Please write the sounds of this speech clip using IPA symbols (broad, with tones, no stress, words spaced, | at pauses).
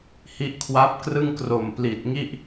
hi˦˥ʔkʰwa˦˥p̚krɯ˥˩ŋkro˨˩m pli˨˩t̚ŋi˥˩ʔ